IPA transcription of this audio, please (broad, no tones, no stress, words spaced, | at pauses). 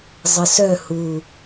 zˤəsœ hu